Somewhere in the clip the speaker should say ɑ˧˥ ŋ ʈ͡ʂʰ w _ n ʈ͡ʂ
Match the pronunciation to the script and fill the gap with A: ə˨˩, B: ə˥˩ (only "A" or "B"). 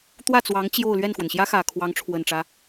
A